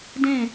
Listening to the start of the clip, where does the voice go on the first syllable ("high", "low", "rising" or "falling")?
falling